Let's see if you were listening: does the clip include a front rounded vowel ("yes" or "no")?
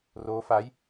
no